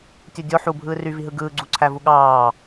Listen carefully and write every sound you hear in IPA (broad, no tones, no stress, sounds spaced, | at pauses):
tʲ u dʲ o ħ u bʱ ɯː r y v i ɦ ɯ ɡ ɯː ɡ͡ǀ u ǀʰ æ v u ɠ ɑː